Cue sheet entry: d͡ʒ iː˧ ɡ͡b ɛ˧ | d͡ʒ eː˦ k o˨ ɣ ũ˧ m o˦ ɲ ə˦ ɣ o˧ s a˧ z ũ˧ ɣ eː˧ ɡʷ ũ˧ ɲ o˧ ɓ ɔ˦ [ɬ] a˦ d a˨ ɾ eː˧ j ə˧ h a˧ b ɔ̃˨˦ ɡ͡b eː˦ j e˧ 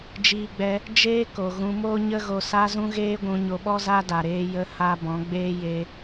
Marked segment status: incorrect: z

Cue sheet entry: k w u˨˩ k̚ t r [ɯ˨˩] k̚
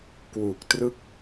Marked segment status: incorrect: ɯ˥˩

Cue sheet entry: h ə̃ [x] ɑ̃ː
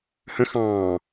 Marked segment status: correct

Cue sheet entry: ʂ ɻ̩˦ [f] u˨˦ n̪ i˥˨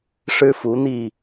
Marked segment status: correct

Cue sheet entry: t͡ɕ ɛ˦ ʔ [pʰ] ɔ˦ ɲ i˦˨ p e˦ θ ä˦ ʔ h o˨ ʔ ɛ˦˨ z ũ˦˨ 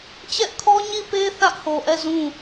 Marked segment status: incorrect: kʰ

